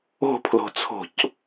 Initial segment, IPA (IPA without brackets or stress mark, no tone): o̤